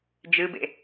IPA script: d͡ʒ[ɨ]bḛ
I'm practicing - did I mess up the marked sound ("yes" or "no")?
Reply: no